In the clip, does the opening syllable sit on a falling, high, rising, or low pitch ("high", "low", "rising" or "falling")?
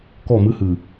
falling